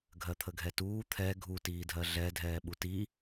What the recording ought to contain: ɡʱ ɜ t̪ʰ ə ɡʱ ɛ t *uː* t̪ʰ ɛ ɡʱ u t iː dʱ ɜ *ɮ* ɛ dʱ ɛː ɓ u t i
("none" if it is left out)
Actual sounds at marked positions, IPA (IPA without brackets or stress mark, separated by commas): uː, ɮ